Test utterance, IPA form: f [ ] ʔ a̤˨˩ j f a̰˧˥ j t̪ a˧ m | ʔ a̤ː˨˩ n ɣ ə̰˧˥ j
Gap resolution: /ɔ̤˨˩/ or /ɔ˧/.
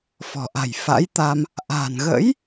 ɔ̤˨˩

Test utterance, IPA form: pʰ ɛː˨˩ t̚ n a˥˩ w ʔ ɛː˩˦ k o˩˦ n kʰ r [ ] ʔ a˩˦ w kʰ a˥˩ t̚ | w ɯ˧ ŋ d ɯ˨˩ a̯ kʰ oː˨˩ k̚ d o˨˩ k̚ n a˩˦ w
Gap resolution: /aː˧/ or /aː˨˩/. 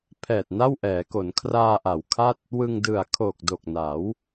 aː˧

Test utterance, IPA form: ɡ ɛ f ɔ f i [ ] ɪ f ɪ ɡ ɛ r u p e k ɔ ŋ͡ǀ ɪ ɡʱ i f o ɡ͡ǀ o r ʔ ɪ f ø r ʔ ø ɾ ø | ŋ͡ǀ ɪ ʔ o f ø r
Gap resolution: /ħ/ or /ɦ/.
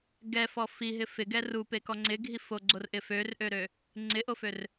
ɦ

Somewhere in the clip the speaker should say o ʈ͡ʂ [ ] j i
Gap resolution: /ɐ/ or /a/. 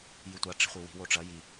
ɐ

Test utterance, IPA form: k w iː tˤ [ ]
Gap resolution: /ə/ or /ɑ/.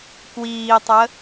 ə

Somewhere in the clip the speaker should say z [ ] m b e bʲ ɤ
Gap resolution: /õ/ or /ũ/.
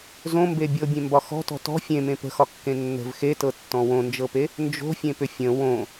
õ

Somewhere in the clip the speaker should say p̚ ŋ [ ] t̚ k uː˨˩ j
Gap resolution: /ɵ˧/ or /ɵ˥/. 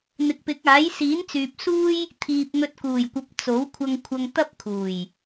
ɵ˧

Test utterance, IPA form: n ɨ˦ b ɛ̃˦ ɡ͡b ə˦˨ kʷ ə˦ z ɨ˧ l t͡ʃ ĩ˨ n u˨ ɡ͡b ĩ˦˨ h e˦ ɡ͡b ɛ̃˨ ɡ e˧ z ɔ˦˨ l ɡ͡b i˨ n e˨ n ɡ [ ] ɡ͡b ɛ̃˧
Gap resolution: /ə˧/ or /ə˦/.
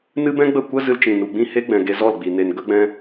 ə˧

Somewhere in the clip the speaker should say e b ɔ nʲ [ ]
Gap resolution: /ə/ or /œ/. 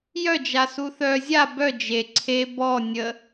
ə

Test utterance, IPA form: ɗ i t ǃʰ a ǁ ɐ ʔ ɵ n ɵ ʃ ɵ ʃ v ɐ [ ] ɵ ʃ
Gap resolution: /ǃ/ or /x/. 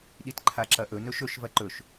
ǃ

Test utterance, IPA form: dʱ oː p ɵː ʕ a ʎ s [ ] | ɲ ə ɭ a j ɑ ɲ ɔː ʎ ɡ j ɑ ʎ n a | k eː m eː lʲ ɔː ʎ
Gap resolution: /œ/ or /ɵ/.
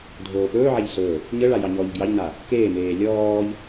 ɵ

